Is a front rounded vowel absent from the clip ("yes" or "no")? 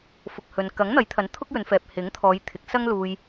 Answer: yes